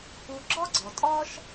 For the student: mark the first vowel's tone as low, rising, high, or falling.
low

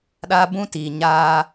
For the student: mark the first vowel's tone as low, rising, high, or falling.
high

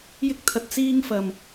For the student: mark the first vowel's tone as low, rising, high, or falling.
high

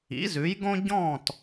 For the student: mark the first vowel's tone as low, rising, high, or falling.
rising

